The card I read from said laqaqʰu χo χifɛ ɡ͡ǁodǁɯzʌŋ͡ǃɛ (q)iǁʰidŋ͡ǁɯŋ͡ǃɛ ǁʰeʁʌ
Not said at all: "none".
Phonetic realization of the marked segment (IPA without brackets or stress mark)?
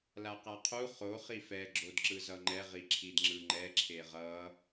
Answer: ʁ